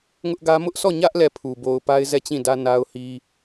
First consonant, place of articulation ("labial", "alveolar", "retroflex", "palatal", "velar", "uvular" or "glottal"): velar